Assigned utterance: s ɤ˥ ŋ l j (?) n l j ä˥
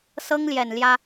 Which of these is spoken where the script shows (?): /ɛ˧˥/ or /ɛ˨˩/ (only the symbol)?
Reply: ɛ˨˩